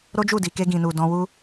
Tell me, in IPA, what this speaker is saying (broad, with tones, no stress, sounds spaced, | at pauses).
ɾ o˦ d͡ʒ u˦˨ d i˨ k e˧ ɡ ĩ˨ n u˨ d ɔ̃˧ w u˦